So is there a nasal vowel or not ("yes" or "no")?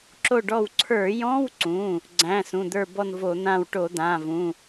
yes